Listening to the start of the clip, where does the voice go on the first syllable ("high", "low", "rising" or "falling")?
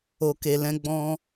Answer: low